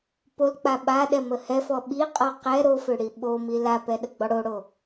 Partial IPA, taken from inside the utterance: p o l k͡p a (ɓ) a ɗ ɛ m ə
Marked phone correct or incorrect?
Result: correct